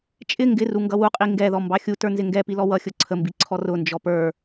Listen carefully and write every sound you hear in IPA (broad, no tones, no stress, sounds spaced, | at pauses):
t͡ʃʼ ɪ ŋ ɡ ɪ r u ŋ ɡ ʌ w u qʼ i ŋ ɡ ɛ ð ɔ m b ɑ xʲ u t ə˞ n z ɪ ŋ ɡ ɛ p i l ɔ w ʌ xʲ ʊ ǀʰ ə m b i ǀʰ ɔ r ʊ n d͡ʒ ɔ p ə˞